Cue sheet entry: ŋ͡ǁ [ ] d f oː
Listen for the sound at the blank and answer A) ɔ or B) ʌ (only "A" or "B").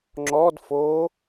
A